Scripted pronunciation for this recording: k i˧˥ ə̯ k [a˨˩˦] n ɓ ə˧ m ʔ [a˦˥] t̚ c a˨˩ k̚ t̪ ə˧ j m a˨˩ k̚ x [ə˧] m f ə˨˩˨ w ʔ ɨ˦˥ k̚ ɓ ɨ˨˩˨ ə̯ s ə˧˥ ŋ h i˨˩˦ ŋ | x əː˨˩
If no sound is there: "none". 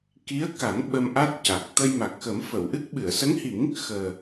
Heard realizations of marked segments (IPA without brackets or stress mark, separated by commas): a˨˩˦, a˦˥, ə˨˩˦